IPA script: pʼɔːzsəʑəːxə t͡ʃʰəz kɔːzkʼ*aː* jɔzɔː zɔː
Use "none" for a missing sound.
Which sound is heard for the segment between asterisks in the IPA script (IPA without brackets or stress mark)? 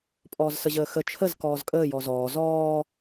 əː